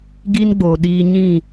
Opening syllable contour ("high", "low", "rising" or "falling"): high